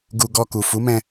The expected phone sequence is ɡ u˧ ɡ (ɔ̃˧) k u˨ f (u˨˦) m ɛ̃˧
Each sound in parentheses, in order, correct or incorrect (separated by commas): incorrect, correct